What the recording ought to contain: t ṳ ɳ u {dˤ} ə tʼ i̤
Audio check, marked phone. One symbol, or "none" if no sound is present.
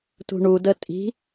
d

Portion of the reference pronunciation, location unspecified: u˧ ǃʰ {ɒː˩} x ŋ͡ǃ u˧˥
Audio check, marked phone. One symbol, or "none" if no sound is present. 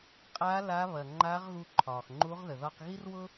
ɒː˩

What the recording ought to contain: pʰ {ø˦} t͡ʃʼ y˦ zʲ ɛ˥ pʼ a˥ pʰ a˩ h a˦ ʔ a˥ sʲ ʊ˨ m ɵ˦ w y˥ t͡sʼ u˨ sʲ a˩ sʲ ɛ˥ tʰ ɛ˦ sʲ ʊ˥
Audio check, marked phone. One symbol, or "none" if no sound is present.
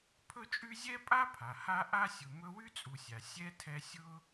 ɵ˦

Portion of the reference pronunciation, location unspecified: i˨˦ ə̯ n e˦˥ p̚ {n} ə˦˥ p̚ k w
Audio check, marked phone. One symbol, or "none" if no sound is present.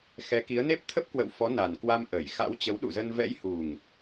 t̪ʰ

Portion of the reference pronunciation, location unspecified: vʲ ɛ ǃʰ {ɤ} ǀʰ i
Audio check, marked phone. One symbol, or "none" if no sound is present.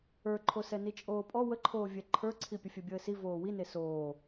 ə˞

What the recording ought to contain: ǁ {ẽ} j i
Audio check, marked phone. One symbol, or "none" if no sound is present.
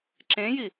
ẽ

